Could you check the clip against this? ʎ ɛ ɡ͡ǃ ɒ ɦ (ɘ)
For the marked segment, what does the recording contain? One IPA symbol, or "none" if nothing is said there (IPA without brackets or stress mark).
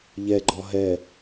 ɛ